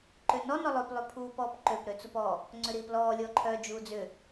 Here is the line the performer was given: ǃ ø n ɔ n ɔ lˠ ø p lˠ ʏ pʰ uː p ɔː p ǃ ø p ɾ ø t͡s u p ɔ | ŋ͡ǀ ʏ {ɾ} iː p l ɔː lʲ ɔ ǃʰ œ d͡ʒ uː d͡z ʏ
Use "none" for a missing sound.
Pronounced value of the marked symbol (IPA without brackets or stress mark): ɾ